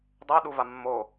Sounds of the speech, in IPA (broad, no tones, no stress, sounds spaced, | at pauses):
dˤ o ɗ u v a mː o